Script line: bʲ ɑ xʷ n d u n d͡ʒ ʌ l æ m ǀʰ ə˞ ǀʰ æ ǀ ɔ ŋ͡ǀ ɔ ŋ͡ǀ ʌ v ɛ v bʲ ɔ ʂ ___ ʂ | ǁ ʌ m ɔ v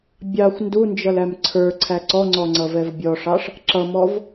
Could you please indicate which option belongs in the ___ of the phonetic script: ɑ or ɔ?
ɑ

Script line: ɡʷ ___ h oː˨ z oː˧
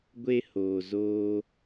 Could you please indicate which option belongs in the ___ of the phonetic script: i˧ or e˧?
e˧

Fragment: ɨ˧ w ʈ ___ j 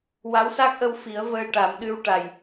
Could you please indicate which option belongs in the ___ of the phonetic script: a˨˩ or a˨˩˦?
a˨˩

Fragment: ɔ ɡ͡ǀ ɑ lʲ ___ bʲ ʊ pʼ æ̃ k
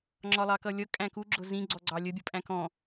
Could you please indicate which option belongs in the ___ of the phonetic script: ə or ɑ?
ə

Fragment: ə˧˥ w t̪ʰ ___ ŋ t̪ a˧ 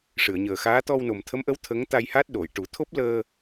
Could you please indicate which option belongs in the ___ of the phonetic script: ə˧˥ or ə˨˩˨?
ə˧˥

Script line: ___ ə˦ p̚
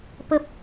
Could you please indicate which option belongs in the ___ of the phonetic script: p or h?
p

